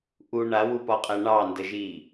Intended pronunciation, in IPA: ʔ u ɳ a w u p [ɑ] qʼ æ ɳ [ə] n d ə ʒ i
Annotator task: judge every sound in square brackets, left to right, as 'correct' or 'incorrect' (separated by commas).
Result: incorrect, incorrect